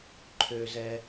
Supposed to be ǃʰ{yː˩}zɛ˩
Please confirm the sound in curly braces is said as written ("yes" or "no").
no